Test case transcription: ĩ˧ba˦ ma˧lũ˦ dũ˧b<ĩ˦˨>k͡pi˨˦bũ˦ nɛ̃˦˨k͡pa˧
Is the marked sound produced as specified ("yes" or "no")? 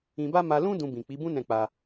no